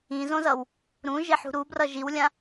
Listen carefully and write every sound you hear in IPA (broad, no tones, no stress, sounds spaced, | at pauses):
ĩ z õ z ʌ w | ɾ ũ ʒ e ħ ṳ ɾ u b r ʌ ʒ i w lʲ ã